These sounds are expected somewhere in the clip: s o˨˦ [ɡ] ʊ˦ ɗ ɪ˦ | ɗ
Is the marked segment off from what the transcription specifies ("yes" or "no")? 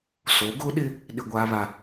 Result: no